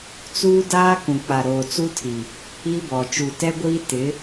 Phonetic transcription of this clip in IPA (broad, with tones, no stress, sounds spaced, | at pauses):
t͡s uː˦ d aː˦ k ũ˨ k͡p a˨ ɾ oː˨ t͡s u˦ tʰ i˨ | i˦ b ɔ˨ t͡ʃ u˨ t ɛ˦ ɡʷ iː˦ t ɪ˨˦